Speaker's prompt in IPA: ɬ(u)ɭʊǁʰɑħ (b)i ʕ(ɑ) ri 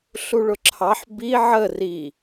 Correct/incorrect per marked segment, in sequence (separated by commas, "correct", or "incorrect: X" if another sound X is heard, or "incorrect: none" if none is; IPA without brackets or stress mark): correct, correct, incorrect: ə